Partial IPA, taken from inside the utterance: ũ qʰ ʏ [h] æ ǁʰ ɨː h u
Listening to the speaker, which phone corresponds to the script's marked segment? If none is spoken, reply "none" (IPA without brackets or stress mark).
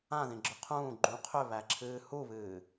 β